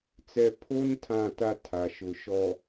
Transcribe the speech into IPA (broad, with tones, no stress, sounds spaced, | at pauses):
t͡s ɛ˨ pʰ o˦ n tʰ ã˦˨ t a˦ tʰ a˨ ʃ ʊ˨ ʃ ɔ˨